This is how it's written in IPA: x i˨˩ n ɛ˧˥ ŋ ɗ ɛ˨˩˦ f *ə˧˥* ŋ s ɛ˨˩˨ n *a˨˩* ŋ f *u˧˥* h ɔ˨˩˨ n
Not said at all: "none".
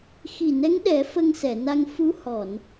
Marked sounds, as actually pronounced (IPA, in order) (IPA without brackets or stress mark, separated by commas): ə˧, a˧, u˧˥